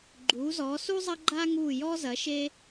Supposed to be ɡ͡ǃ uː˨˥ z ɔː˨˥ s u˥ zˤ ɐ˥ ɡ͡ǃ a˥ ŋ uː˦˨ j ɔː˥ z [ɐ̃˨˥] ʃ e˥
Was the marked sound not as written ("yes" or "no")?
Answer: yes